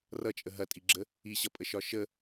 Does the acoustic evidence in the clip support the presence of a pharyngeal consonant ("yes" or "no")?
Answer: no